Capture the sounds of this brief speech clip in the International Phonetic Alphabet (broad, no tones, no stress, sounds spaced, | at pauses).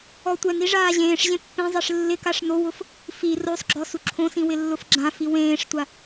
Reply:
ɔ tʷ ɛ n i ʐ aː ʑ ẽː ʂ ʑ ẽ pː ẽ zˤ e ʂ lː ɪ k a ʂ n o w ʊ f | f i r o sˤ ɡ͡ǁ ɔ s u ǁʰ õ s ĩ w ɪ lː ʊ f ɡ͡ǁ ã f i w ẽː ʂ tʷ a